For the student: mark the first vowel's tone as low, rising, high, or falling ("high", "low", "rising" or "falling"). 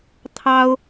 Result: high